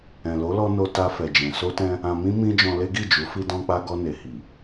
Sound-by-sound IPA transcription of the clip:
ɛ̃˨lo˨˦lɔ˧ no˧ta˧ fɛ˨d͡ʒɛ̃˨ so˧tɛ̃˧ | ã˧mĩ˦mĩ˦d͡ʒɔ̃˧ le˦ɡi˦˨d͡ʒu˨˦ fi˧dɔ̃˧k͡pa˧ ɡɔ˧ne˨ hi˨

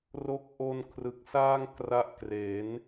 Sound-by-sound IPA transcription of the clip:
ro˦˥k̚ʔo˧nkʰrɯ˨˩k̚saː˥˩ŋ kra˦˥ʔkre˩˦n

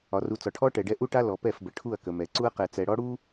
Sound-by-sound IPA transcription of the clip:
ɒ˨ru˨ t͡sɒ˨ʈʰɔ˦ʈɛ˨ɖɛ˦ ʔu˦ʈa˦ lɔ˨pɛ˦˨fbə˨ ʈʰu˦˨ɐ̯kə˨mɛ˨ ǀu˦ɐ̯qɛ˨t͡sɛ˨ɽɔ˦ ɽu˦

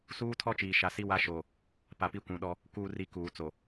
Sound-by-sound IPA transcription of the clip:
suː˦tʰɔ˦t͡ʃiː˨ ʃa˨si˦wa˦ʃoː˨ | pa˨pi˦kʷũ˨ɗɔ˦ | kuː˨ri˨ kuː˨t͡so˨

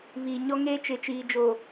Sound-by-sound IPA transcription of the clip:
βiː˨ ɲɔ˦ŋeː˦ t͡ʃɪ˨t͡ʃiː˨d͡ʒoː˨

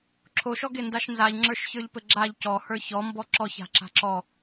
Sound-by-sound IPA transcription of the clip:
ǁʰoʃɔɡe ndaʃnzaʎ ŋ͡ǁə˞ʃçə˞ʎpɘɡ͡ǁaʎ cɔhə˞ çɔmbɔ ǁɔça̤ ǁa̤ǁɔ

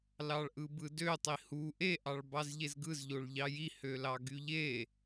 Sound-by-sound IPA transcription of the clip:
lɑɭʔɯbɯdø tˤihu ʔe ʔɑɭbɑzʎezɡɯz ʎoɭʎɑji hølɑɡyʎe

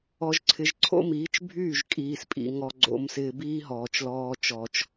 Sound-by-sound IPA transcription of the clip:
ɔ˨ʒǀʰɪ˨ʒǀʰo̰˦miː˨˦t͡ʃ bʱyː˦˨ʒkʼiː˨spʼḭ˨ ŋɔ˨ɡ͡ǀo̰˨msɪː˨ biː˦ɦɔː˨t͡ʃlɔː˦t͡ʃɔː˦t͡ʃ

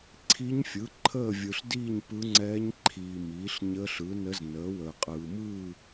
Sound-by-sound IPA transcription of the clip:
ǀʰi˧˥ɲfʲɯ˩˥ ǃʰəː˥˨vʲɯ˨ɬdiː˥˨ɲ pɯ˧˥ŋ͡ǀɛː˧˥ɲǃʰiː˨miː˩˥ɬ ɲəː˧˥ɬɯ˩˥nə˧˥z nəː˩˥wəː˨qʼɯː˨ mɯː˥˨

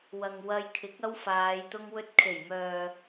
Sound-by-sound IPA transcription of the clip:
wɐ˨ŋwɐ˧jkʰɪ˨˥k̚ ɐ˥wfaː˨˧j t̪ʊ˧ŋwɵ˧t̚kʰe˨˩jmœː˨

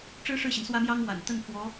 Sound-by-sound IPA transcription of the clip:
ʈ͡ʂɻ̩˥ʂɻ̩˥˩ɕi˩n swä˥mjɑ˥ŋwa̰˨˩n t̪ə˥˩n fwɔ˧˥

